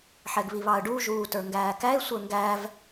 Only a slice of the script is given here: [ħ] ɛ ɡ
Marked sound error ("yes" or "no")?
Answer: no